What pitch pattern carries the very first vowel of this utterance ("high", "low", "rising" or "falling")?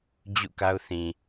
falling